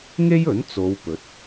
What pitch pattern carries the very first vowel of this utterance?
high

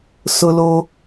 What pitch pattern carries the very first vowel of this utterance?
low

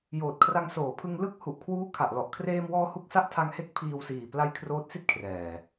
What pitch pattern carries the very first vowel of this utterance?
low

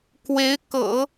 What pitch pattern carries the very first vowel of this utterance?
rising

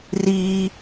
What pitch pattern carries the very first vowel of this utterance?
high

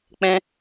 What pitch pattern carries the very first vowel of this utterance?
high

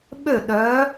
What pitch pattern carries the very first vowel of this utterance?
falling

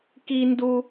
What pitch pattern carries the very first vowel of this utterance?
high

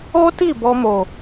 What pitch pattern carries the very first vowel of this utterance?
high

